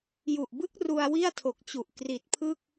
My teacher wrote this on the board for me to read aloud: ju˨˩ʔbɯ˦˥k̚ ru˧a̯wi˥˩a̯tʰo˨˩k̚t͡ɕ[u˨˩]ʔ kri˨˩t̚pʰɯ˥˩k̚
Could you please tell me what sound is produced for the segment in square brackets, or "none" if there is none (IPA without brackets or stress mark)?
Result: u˨˩